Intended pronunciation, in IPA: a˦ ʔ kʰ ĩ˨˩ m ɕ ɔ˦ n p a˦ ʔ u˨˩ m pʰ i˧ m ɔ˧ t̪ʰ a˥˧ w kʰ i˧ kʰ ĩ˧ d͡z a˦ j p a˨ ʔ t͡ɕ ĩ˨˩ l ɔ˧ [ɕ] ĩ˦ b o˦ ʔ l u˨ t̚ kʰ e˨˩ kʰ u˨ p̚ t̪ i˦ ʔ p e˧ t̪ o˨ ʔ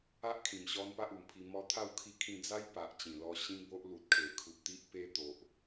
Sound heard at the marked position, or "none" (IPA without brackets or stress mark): ɕ